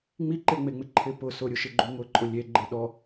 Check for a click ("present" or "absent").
present